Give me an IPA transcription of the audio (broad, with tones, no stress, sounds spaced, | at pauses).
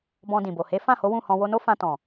b ɔ̃˧ d ĩ˨ b o˨ h e˨˦ f ã˦˨ h o˨˦ w ũ˦˨ h ɔ̃˧ w o˧ n o˦ f ã˧ t ɔ̃˨